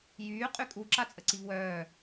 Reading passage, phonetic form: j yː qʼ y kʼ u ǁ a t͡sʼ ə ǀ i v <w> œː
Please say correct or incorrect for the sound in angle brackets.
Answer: correct